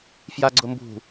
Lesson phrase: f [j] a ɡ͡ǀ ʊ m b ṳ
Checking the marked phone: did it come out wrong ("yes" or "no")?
no